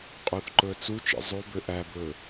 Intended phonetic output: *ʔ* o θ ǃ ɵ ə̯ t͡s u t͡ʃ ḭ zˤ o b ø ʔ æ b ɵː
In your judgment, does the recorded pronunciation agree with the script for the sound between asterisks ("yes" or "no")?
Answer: no